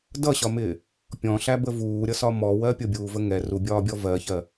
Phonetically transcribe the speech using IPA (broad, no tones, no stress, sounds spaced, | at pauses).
d ʌ ɕ ɒ m ɪː | pʲ ɔ̃ ɬ æ b ə v uː ɾʲ ʌ s ɒ m ɔ w ɜ pʲ ʊ bʲ uː v ə ŋ ɛ r u bʲ ɒː bʲ ɔ v ɜ ç ɜ